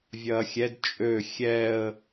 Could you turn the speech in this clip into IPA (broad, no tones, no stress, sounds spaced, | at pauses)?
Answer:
vʲ ɐː xʲ ɛ d t͡ʃʼ ø xʲ ɛ ə̯